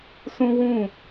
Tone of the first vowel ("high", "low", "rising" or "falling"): high